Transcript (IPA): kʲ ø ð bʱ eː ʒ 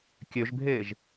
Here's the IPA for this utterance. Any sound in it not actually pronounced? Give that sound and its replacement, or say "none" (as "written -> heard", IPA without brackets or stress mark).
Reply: ð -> ʒ